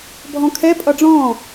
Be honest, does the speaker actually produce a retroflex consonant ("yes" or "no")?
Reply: yes